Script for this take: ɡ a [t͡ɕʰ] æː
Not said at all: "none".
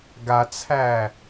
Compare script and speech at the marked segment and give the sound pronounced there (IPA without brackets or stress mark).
t͡sʰ